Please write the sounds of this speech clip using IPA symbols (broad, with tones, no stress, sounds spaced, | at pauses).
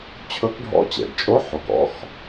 t͡ɕʰ ɵ˧˥ k ɖʱ ɔ̰˧˥ t͡ɕ ɛ̰˩ ɖ t͡ʃʼ o˧˥ ħ o˩ k ɔ̰˧˥ x